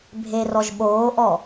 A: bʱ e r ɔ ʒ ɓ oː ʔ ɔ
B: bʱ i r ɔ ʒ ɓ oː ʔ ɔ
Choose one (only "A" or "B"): A